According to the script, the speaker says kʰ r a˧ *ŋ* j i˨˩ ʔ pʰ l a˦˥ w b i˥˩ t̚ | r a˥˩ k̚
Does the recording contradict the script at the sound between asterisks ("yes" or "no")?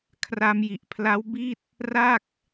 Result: yes